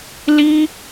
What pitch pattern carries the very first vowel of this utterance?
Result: high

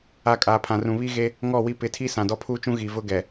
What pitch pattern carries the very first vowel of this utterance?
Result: falling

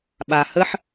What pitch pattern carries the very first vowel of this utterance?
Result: low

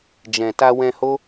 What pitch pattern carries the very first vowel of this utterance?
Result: low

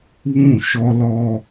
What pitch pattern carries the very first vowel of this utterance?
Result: falling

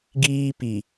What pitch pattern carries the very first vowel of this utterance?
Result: high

